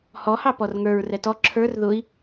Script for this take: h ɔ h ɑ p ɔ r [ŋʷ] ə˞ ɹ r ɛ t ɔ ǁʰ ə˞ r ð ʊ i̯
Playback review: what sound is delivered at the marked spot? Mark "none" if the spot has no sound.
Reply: ŋ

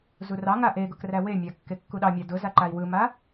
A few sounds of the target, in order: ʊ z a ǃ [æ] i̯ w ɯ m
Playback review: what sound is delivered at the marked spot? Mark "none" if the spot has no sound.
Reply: a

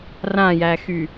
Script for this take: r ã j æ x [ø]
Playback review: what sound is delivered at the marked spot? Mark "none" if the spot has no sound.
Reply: y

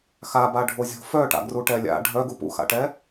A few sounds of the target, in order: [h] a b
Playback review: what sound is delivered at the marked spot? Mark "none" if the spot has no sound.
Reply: x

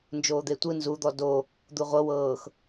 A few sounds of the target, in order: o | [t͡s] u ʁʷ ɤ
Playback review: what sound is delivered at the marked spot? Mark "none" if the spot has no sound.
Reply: d̪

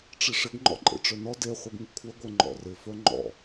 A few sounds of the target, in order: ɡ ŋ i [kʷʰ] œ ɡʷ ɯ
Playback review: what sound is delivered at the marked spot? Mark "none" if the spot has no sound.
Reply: kʷʰ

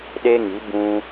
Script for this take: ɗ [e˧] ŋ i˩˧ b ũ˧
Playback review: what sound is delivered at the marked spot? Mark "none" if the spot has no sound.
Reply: e˧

